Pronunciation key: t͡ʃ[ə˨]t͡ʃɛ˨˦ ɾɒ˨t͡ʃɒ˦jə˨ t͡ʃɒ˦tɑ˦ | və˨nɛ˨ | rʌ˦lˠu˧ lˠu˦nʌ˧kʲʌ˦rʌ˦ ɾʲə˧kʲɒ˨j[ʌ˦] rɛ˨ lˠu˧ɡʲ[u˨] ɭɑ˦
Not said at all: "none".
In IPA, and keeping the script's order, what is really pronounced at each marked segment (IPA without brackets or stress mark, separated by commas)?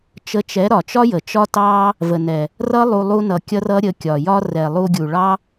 ə˧, ɒ˦, u˨